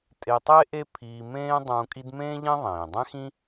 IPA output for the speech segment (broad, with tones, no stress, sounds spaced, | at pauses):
tʼ e˧ tˤ e˥ ʔ e˥ pʰ iː˧ m ẽː˥ dˤ ũː˧ kʼ i˥ d m ẽː˥ ʎ ẽ˥ ðˤ ẽː˩ dˤ ɛ̃˥ x ĩ˥